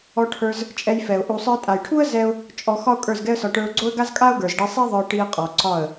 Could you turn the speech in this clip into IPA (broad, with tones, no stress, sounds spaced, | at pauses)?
ɔ˧ ʈʰ ə˞˧ z | t͡ʃʼ ɛ˧ j f ɛ˨ ʊ̯ ʔ u˨ sˤ ə˞˧ tʼ a˨ j ʈʰ u˦ ə̯ z ɛ˦ ʊ̯ | t͡ʃʼ ɔ˧ x ɒ˦ ʊ̯ kʼ ə˞˦˨ z ɡ ɛ˦ ə̯ s ɒ˧ ʈ ə˞˧ ʊ̯ ɡ͡ǀ o˦ ə̯ ɡ a˦ z kʼ a˦ ʊ̯ ɡ ə˞˨ z ɖ i˧ sˤ i˦ ðˤ ə˞˧ ʈ i˧ ə̯ qʼ ɔ˨ ǀ ɒ˦˨ ə̯